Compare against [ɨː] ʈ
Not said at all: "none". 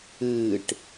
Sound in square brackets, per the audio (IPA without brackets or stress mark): ɨː